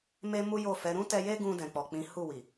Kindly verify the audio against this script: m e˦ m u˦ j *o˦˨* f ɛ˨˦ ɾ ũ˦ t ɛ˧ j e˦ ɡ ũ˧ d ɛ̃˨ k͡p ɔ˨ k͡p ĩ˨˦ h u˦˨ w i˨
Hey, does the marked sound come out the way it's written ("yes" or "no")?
yes